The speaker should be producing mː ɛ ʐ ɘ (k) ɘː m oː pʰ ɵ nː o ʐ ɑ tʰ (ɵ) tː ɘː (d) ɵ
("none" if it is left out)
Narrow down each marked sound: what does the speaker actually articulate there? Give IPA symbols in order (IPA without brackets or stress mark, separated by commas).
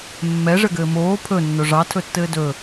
ɡ, ɵ, d